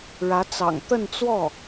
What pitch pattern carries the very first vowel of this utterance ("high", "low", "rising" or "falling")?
rising